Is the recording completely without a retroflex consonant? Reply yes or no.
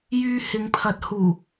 yes